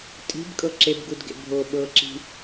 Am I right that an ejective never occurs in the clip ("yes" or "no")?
no